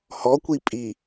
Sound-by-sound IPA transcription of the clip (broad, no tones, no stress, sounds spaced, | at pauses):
h ɔ kʷ i pʼ i